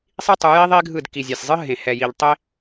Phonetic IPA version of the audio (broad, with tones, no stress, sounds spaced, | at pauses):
sˤ i˦ tˤ u˨˦ j i˦ ðˤ i˦ ɡʱ ɯ˦˨ d k i˨ zʲ a˨ sʲ zˤ ɯ˦ ɦ ẽ˨ h ɛ˨ j i˨ ʎ tˤ e˦